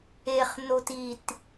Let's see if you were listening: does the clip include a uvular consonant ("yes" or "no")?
yes